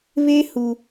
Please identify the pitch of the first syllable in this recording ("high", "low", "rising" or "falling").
high